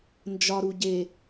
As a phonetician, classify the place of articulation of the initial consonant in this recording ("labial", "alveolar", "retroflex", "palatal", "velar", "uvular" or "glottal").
alveolar